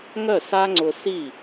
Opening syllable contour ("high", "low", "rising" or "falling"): falling